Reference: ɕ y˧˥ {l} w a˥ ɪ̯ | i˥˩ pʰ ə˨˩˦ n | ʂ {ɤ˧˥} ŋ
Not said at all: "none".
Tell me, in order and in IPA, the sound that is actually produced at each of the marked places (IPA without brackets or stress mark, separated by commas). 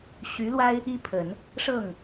l, ɤ˥˩